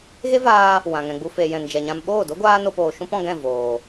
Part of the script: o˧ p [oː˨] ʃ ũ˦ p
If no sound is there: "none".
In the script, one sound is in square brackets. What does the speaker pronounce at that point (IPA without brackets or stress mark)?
oː˨